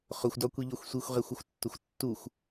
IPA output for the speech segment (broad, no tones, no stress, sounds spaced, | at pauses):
χ ʊ xʷ d ɒ kʷ i ʎ ɒ xʷ sʷ i xʷ ʁ e xʷ ʊ xʷ tː ʊ xʷ tː u xʷ